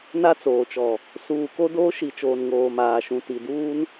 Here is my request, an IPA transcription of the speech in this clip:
n a˦ t͡s oː˨ t͡ʃ ɔ˨ | s uː˨ k o˦ d oː˦ ʃ i˨ t͡ʃ oː˨ n ŋ oː˨ m aː˨ ʃ ũ˨ t i˨ d uː˦ n

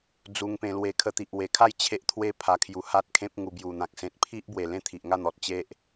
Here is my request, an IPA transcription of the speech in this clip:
d͡z u˧ ŋ p ẽ˧ l w e˧ kʰ ə˧ t̪ i˨ ʔ w e˨˩ kʰ a˥˧ j t͡ɕʰ e˦ ʔ t̪ʰ w e˦ pʰ a˧ kʰ j u˧ h a˦ t̚ kʰ ẽ˦ p̚ ŋ u˧ b j u˨˩ n̪ ã˨ k̚ s ẽ˨ t̚ pʰ i˦ ʔ b w e˨˩ l ẽ˥˧ t̪ʰ i˨ ʔ ŋ a˥˧ n̪ ɔ˨ t̚ t͡ɕ e˦ ʔ

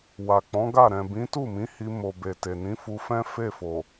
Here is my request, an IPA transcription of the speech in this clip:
w a˨ k͡p ɔ̃˨˦ ɡ a˦˨ ɾ ɛ̃˨ b ĩ˨˦ t u˦˨ m ĩ˨˦ h i˧ m o˨ b e˨ t e˨ n ĩ˨˦ f u˧ f ɛ̃˦ f e˦˨ f o˨

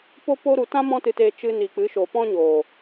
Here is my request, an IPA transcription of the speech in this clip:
p o˦ p o˦ ɾ u˧ t ã˦ m ɔ̃˦ t ɨ˧ t eː˧ t͡ʃ ɨ˧ n i˨ k͡p ɨ˨˦ ʃ o˨ p ɔ̃˦ ɲ oː˨

